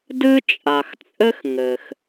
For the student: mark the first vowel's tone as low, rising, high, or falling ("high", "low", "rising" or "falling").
high